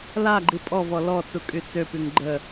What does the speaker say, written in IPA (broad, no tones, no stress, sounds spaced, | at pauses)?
l a ɡ͡ǃ i pʼ ɔ v ɔ l ɔ t͡s u kʼ y t͡s ø p y ŋ ɡ͡ǃ ə